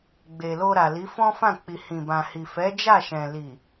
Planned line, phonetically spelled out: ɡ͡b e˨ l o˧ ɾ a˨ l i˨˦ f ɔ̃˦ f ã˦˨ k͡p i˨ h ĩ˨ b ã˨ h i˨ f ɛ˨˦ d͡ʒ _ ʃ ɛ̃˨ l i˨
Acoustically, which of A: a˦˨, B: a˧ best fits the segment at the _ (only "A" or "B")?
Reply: A